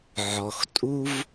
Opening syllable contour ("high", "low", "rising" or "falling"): low